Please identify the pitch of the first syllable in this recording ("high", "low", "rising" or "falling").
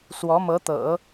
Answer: rising